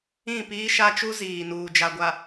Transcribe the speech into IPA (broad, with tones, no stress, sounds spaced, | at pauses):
ĩ˦˨ p iː˦ ʃ a˦ t͡ʃ u˦ z iː˨ n uː˨ d͡ʒ a˨ ɡʷ a˨